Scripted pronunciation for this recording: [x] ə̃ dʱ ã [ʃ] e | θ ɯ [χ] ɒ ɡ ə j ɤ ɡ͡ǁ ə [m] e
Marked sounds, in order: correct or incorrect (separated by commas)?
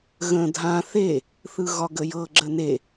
incorrect, incorrect, incorrect, incorrect